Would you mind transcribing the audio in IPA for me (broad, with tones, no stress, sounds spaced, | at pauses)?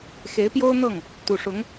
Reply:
x e˧˥ ɪ̯ p j o˥ ʊ̯ n̪ ɤ˥˩ ŋ | t̪ u˨˩ ʂ ʊ˧˥ ŋ